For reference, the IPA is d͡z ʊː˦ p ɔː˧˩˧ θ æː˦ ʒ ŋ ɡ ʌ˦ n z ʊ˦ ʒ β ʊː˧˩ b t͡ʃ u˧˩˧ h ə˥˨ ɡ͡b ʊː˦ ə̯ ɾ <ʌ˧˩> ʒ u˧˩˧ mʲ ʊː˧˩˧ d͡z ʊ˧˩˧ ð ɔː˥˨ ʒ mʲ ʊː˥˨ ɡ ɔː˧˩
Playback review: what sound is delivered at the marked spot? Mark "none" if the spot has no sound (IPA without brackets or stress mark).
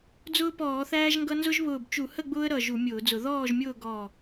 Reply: ʌ˧˩